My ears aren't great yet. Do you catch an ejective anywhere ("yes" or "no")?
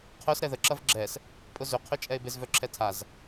yes